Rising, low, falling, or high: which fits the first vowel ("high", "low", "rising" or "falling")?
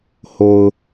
low